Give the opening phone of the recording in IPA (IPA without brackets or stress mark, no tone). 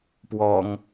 p